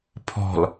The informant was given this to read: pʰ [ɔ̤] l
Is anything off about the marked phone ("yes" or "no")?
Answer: no